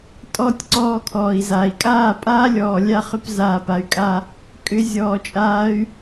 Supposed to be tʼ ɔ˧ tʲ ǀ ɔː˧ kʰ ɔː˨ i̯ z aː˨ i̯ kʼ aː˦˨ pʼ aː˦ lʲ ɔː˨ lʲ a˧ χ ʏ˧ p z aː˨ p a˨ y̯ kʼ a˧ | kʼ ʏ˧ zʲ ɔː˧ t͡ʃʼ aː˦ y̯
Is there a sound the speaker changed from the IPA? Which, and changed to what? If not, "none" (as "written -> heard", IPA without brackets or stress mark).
none